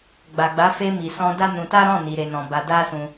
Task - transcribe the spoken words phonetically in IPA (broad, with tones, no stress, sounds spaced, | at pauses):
ɡ͡b a˨ ɡ͡b a˨˦ f e˧ m i˨ s ɔ̃˧ d a˦ n ũ˧ t a˦ ɾ ɔ̃˦˨ n i˨ ɾ e˨ n ɔ̃˨ b a˧ d a˦ s ũ˧